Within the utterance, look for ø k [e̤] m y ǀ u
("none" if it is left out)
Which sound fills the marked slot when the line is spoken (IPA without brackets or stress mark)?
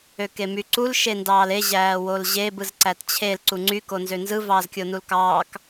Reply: e